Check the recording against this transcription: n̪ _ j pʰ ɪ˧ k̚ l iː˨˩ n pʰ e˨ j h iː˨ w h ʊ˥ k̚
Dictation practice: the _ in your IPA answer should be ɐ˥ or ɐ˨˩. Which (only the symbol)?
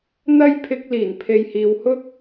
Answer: ɐ˥